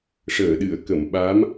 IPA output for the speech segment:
ʂ əː˨˩˨ ɗ ɨ˨˩˨ ə̯ k ə˨˩˨ m ɓ a˧˥ m

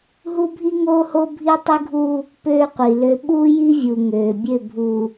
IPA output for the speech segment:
ɦ u˦ bʱ i˦ ŋ oː˦ h o˦ bʱ i˦ tˤ i˦ ɡʱ u˦ | p øː˦ qʷ i˨ l ø˦ ɓ uː˦ j i˦ vʲ u˨ ŋ øː˨ bʲ ø˦˨ bʱ u˨

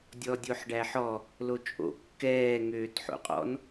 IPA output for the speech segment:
dʲ ɔ dʲ o ħ ɖ æ ħ ɔ | l o t͡ʃʼ o̰ kː ɛː ŋ øː t ħ o̰ qʼ ɔ̰ n

